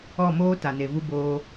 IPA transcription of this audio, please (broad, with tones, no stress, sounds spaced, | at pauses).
ɔ˦˨ m oː˧ t a˨ n e˨ v u˧ b oː˧